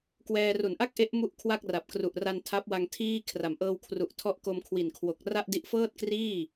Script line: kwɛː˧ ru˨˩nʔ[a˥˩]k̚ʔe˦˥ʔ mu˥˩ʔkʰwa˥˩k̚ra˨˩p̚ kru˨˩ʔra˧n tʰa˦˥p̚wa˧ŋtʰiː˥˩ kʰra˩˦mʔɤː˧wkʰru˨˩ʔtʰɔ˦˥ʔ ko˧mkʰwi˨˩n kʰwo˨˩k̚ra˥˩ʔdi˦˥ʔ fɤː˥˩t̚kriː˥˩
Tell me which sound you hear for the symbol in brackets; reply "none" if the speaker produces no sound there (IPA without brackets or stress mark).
a˥˩